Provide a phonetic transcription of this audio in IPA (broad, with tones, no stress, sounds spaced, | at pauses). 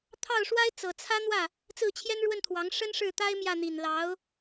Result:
t̪ʰ ɑ˥˩ ʊ̯ ʂ w a˥ ɪ̯ t͡s ɤ˨˩ t͡sʰ ä˥ n̪ w ä˥˩ | t͡s ɹ̩˥˩ t͡ɕʰ j ɛ˥ n ɻ w ə˥˩ n t̪ʰ w ɑ˧˥ ŋ ʂ ə˥ n ʂ ɻ̩˥˩ t̪ a˥ ɪ̯ m j ä˥˩ n̪ i˨˩ n l ɑ˧˥ ʊ̯